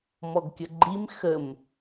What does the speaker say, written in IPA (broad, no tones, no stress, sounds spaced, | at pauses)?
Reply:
m ɔ ɡ kʲ ə ɡ͡ǃ i m x ə m